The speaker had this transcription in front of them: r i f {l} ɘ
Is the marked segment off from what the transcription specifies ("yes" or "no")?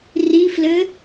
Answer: no